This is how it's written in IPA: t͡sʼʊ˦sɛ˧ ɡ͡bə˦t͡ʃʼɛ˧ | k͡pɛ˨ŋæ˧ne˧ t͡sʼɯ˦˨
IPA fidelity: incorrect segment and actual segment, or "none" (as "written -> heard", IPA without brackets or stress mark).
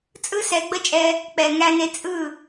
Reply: ʊ˦ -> ɯ˦